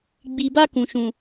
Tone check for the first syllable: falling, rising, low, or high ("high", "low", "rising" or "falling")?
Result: low